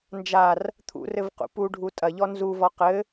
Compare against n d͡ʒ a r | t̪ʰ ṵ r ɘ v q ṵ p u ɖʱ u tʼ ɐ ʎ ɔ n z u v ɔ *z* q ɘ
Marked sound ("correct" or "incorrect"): incorrect